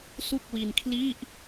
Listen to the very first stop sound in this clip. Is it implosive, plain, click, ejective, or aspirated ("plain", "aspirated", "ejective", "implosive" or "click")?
plain